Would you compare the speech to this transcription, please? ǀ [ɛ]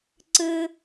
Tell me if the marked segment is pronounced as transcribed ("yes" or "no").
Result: no